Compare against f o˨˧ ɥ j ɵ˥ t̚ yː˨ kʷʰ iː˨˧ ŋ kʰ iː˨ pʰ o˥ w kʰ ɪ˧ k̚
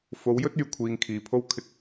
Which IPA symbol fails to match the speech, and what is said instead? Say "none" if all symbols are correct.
ɥ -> w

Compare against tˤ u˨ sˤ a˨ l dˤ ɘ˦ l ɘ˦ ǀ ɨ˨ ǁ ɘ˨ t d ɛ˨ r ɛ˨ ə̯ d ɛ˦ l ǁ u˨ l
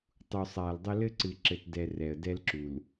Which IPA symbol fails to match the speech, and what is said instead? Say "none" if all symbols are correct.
none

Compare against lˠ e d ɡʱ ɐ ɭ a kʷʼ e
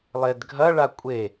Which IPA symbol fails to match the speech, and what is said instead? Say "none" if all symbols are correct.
none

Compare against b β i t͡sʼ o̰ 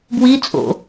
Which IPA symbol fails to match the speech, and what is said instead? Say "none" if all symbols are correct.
β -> w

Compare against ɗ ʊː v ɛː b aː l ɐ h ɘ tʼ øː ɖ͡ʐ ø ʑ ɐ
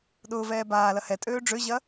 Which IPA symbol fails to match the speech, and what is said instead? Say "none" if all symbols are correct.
ɘ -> ɛ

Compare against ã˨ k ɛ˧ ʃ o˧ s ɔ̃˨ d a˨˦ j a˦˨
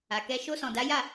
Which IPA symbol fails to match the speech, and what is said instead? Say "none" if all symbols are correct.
ã˨ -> a˨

